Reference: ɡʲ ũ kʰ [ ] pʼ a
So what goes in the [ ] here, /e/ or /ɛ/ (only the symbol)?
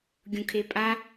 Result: e